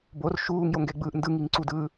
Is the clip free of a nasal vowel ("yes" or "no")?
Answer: yes